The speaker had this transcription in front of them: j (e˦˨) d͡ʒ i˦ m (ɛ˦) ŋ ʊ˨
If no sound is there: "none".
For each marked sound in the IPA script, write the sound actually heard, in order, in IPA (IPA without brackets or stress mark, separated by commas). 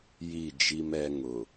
i˦˨, ɛ˦